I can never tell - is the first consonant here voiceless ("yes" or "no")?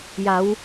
no